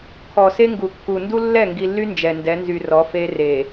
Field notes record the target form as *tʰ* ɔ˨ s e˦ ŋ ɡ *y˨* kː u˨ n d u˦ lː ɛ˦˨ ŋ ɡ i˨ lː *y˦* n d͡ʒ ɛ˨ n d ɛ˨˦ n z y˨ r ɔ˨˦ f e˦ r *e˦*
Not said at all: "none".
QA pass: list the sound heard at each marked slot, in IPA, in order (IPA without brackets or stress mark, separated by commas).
kʰ, u˨, y˦, e˨